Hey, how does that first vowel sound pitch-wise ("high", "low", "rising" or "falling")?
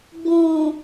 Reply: low